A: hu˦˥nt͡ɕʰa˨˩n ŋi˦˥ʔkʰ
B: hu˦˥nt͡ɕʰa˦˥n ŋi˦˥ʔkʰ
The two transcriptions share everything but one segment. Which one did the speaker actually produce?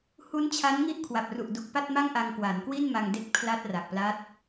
B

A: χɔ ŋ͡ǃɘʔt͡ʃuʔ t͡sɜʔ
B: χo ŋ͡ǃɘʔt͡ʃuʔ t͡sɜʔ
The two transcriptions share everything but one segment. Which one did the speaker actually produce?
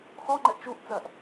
A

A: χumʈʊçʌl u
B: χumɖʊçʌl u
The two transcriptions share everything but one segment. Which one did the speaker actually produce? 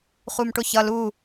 A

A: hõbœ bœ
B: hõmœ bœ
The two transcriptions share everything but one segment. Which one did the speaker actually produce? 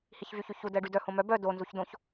B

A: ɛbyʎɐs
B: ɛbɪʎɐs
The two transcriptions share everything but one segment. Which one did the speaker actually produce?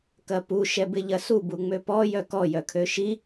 B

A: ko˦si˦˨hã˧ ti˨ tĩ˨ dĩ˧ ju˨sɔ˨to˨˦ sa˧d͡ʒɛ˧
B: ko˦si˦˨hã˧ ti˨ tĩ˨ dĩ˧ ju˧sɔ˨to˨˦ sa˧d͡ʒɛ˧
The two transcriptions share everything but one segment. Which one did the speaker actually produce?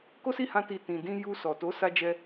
B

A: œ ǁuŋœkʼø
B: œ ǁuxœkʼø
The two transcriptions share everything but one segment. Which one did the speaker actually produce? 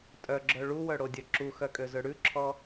B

